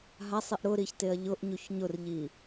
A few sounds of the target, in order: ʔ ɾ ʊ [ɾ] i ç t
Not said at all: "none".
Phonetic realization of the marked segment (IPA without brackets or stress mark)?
ɾ